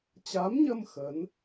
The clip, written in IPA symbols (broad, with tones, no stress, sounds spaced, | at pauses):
t͡ɕ a˨˦ m ɲ ə˧ m x ə˨˦ n